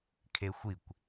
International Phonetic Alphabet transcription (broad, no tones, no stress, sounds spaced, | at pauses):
kʰ e xʷ i kʷ